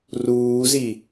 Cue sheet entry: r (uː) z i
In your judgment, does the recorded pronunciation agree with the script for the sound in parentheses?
yes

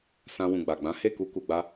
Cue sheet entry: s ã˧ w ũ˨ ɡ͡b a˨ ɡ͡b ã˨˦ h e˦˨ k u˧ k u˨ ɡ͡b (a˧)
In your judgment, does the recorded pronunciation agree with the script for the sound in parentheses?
yes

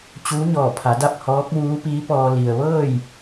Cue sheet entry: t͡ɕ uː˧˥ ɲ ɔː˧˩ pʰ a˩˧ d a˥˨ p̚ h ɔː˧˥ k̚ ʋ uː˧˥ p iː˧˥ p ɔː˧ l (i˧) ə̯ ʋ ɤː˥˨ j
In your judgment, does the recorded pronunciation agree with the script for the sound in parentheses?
no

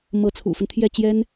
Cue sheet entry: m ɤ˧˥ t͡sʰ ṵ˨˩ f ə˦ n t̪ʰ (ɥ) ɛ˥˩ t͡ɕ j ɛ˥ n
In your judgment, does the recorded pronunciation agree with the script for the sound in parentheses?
no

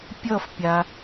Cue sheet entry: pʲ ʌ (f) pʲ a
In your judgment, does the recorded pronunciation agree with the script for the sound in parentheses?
yes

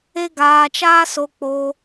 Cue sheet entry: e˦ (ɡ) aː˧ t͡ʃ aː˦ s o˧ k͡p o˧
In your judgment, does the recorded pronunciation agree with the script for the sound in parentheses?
yes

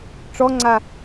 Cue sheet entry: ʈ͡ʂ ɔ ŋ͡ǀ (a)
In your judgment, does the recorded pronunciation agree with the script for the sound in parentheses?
yes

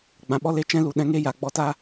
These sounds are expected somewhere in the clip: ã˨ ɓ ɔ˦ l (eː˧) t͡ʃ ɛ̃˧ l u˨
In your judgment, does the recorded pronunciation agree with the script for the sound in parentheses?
no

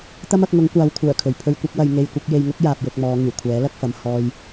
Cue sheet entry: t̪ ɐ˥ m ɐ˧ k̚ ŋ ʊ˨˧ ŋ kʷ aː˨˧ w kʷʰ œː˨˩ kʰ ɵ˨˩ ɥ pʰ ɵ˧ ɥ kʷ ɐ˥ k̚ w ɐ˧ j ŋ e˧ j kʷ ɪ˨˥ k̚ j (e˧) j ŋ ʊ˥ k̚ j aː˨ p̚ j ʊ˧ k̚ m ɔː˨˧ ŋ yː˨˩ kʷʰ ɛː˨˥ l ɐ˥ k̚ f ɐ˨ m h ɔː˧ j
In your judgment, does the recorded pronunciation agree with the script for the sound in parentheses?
yes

